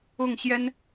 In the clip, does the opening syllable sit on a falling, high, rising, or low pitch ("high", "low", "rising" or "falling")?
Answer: falling